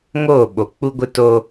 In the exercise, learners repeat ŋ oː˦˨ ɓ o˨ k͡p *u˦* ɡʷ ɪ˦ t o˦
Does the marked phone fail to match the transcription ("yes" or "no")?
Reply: no